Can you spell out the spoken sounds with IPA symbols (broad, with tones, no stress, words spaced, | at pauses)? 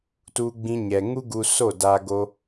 tu˧ɡ͡bĩ˧ɲɛ˨ ŋu˦ɡu˧so˦˨da˧ ɡo˧